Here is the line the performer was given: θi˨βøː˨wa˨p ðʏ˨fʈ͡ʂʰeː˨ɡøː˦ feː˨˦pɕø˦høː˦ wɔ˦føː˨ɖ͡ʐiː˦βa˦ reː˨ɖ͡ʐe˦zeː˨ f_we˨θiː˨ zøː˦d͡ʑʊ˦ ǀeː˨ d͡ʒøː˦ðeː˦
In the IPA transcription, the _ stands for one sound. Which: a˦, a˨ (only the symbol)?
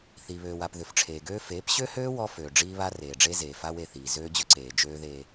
a˦